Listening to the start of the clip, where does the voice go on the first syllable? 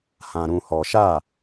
low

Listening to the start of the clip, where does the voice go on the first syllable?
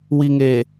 low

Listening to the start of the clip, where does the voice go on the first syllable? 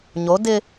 rising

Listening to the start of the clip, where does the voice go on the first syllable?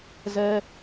high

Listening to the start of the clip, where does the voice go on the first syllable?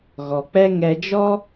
low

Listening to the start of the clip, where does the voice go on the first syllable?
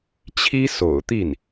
high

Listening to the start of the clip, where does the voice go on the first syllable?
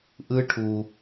high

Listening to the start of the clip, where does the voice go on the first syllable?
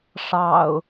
low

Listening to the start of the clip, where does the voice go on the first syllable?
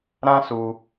high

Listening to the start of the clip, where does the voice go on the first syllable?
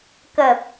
low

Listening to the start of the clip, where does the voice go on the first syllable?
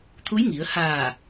rising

